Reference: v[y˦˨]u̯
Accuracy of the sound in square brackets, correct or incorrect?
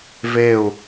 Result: incorrect